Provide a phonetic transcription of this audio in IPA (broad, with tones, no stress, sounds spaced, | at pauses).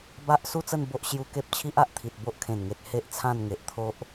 b a˦ ʔ s u˥˧ t͡s ə˥˧ n b o˦ ʔ ɕ j u˧ k e˦ p̚ t͡ɕʰ i˦ ʔ a˨ ʔ t̪ʰ i˨ t̚ b o˦ ʔ kʰ ẽ˨˩ n ŋ e˨ t̚ h e˦ ʔ t͡sʰ ã˥˧ n ŋ e˨ ʔ t̪ʰ o˦ ʔ